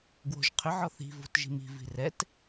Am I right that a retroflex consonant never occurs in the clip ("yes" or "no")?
yes